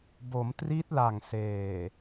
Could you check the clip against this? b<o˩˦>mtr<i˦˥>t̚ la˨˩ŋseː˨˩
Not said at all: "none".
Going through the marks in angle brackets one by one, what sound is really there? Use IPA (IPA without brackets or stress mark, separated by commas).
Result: o˩˦, i˦˥